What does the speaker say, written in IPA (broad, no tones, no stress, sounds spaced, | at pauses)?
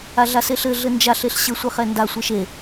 a ɮ a s e ɬ ɘ ɮ ɘ n d͡ʒ a ɬ e ɬ ɕ ɘ sʷ ɘ χ ɛ n d a sʷ e ʃ e